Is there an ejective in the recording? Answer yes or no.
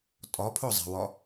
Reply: yes